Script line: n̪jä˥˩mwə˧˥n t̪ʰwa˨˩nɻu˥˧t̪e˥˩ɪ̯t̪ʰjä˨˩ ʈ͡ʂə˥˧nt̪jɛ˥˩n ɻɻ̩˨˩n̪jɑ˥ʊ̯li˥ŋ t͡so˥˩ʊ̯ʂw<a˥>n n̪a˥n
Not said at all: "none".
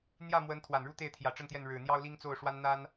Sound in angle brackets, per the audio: a˥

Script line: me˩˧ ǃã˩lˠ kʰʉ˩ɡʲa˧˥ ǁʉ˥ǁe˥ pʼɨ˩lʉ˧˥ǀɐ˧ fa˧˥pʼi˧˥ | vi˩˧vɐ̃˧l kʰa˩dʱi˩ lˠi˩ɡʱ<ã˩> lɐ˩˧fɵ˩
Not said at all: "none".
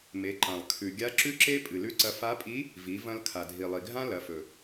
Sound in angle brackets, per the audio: ã˥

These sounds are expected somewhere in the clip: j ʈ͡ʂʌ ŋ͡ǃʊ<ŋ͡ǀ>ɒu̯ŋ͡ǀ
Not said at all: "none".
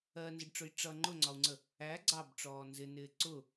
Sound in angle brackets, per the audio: ŋ͡ǀ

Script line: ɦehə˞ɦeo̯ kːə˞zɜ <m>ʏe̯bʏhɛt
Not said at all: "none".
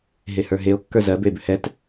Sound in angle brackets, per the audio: b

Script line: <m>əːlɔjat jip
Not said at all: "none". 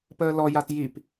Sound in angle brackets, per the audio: p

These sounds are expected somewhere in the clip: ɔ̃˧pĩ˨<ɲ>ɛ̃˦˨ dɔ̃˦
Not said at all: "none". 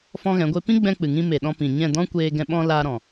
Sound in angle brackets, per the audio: ɲ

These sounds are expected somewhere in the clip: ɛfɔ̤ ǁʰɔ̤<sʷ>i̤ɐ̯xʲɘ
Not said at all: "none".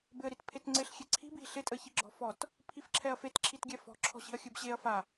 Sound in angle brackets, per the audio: ɕ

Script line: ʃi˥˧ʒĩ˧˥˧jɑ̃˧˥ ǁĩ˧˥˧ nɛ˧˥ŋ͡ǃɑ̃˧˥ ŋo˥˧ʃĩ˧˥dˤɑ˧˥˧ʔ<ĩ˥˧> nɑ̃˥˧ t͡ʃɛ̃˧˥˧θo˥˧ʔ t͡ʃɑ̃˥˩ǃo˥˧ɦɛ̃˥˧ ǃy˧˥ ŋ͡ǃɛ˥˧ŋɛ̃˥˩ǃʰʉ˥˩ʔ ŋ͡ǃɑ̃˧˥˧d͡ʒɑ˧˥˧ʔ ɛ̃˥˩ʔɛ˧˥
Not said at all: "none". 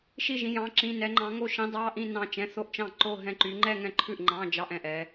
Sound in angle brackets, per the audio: ĩ˥˧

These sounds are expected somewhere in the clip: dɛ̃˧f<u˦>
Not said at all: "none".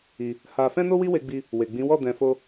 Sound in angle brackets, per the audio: o˦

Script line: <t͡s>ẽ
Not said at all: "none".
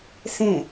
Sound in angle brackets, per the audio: s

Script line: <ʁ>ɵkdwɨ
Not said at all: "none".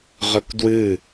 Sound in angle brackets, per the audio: ʁ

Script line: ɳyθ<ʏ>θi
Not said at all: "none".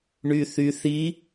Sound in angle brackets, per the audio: y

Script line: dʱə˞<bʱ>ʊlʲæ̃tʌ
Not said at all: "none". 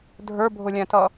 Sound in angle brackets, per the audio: bʱ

